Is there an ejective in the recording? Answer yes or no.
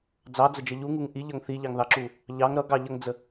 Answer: no